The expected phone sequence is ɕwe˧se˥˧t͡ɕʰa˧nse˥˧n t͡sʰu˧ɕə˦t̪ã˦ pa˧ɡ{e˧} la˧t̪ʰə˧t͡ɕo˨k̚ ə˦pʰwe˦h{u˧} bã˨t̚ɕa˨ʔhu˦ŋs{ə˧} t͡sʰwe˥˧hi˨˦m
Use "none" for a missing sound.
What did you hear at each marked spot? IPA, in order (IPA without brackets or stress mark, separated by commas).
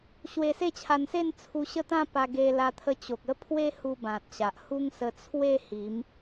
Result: e˧, u˧, ə˧